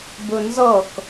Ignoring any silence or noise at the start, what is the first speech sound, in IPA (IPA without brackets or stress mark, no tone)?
b